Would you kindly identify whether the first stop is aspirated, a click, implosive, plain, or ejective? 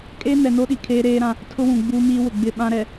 ejective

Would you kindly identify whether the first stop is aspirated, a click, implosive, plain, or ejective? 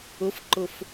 click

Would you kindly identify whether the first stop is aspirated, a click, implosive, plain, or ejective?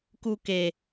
plain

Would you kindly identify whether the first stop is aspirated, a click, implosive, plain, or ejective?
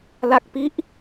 plain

